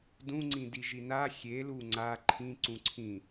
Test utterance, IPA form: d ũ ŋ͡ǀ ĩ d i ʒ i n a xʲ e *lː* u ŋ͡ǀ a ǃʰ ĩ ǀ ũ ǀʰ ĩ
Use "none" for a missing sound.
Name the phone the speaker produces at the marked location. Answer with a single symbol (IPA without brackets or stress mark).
l